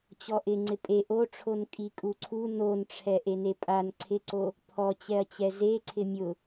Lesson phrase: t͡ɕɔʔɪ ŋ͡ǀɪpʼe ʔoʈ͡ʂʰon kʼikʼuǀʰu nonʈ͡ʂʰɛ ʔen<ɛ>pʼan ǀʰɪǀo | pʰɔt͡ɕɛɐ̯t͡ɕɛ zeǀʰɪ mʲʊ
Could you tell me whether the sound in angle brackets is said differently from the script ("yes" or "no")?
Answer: yes